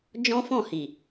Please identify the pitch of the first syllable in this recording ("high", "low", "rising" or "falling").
high